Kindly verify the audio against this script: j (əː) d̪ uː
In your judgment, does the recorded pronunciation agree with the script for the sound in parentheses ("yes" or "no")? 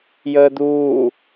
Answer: yes